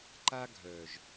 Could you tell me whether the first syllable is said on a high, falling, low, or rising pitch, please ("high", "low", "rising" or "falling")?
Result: high